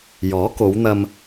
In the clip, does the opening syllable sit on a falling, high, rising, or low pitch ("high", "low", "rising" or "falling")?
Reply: rising